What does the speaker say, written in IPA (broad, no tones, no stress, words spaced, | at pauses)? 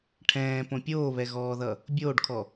ʈʰɛ̃ːpõ pʲoːβɛɣɔːðʌ | bʲoːɖkʰɔ